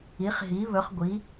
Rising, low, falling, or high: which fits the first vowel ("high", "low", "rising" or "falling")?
rising